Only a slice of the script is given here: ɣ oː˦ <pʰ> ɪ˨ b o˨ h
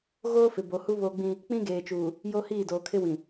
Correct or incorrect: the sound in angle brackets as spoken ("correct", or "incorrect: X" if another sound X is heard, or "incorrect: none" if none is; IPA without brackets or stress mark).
incorrect: f